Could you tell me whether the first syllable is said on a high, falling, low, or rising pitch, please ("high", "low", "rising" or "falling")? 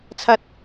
low